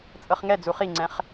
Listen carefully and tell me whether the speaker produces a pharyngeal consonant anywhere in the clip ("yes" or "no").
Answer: no